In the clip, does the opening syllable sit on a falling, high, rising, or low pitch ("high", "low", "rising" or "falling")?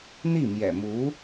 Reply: falling